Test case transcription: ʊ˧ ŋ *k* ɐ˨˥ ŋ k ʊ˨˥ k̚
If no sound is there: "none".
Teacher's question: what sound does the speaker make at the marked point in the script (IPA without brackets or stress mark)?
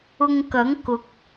k